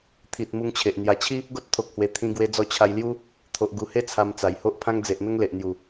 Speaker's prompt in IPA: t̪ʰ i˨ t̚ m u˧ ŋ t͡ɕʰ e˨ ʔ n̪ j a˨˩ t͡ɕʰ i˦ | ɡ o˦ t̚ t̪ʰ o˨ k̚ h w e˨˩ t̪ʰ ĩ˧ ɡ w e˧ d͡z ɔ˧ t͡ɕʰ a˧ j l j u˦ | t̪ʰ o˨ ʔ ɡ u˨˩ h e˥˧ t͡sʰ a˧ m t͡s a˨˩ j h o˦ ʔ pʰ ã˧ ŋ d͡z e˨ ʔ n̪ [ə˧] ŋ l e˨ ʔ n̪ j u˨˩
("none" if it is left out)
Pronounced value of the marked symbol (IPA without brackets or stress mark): ə˧